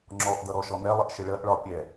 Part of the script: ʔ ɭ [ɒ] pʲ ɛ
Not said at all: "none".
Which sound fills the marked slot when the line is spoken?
ɒ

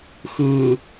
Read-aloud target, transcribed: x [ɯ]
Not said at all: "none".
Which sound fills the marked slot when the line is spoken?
ɯ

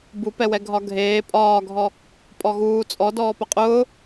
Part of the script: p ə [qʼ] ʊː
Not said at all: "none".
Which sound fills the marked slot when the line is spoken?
qʼ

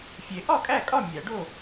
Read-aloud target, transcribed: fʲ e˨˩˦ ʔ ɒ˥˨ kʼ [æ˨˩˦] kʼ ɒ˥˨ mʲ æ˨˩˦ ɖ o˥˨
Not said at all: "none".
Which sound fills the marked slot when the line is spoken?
æ˥˨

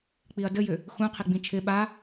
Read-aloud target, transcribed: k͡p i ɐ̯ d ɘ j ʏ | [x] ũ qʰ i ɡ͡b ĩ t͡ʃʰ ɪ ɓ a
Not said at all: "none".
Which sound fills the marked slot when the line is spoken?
x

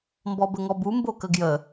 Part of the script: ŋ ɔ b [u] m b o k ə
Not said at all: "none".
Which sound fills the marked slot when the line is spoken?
u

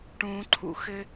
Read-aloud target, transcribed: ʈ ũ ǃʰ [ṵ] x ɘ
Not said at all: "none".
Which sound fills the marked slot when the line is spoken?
ṵ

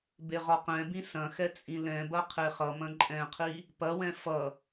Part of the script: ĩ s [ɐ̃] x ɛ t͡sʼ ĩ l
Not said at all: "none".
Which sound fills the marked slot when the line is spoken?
ɐ̃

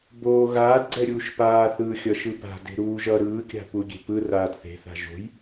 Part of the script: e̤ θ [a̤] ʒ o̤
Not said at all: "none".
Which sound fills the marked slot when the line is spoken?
a̤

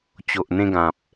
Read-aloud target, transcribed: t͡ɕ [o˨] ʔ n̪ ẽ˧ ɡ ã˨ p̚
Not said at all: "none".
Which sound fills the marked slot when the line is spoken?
o˨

